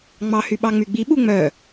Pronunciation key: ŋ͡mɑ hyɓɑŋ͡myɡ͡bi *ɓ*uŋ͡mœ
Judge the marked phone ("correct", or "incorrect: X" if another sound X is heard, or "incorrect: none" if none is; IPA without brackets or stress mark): correct